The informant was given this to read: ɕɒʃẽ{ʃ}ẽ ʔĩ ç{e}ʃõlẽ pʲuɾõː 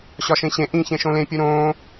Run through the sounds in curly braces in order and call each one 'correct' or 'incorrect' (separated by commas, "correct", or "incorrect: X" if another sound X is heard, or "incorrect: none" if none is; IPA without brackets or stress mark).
incorrect: ɕ, incorrect: ẽ